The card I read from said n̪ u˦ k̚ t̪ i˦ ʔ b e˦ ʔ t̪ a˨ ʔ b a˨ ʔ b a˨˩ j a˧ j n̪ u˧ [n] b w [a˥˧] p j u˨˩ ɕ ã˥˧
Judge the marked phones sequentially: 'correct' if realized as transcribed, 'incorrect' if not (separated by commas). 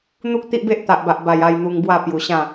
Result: incorrect, correct